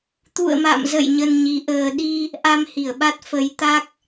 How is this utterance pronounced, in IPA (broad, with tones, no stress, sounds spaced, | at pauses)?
t̪ ṵ˧˨ ə̯ m a̰˧˨ m z ə̰˧˨ j ɲ ə˧ n ɲ i˨˦ ʔ əː˧ ɗ i˧ | ʔ a˧ m h i˧˩ ə̯ ɓ a˦˥ t̚ f ə˨˦ j t̪ a˦˥ k̚